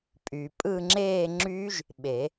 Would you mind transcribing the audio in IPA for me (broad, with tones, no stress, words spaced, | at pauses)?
pʼy˨pʼɯ˥˧ ŋ͡ǁeː˥˧ŋ͡ǁy˦˥ʒ | ɓe˨˩˦